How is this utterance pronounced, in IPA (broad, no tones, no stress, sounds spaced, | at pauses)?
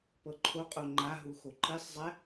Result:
p ɤ ǃʰ o qʼ o ŋ͡ǃ a ɦ u x o ǃ i sˤ zˤ ɛ